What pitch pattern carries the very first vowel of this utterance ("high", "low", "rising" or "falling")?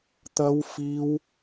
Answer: high